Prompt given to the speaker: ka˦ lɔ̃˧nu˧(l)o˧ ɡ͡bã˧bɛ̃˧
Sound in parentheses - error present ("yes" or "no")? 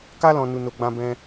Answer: yes